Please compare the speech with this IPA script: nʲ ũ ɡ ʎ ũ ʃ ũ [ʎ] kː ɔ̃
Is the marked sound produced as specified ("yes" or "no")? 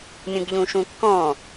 no